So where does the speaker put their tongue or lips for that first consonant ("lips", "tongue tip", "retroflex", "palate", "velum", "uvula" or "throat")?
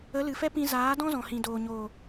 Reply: tongue tip